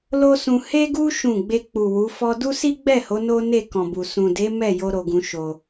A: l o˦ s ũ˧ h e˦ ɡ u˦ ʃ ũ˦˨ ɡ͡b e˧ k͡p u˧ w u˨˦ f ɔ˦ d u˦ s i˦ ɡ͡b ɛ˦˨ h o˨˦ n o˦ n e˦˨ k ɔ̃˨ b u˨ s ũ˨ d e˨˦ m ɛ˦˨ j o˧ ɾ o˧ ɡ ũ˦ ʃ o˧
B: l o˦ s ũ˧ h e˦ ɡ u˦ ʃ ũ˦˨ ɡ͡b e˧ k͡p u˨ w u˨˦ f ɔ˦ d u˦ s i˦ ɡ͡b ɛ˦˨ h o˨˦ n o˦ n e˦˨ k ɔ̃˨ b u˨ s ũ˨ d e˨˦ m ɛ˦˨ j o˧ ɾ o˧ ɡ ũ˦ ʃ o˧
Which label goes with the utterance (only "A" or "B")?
B